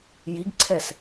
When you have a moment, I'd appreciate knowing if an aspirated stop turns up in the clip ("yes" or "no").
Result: yes